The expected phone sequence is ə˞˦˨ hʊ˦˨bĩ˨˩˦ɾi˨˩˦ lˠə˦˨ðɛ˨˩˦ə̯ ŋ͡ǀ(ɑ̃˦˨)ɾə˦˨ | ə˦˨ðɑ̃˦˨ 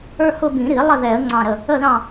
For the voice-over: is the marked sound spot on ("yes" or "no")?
yes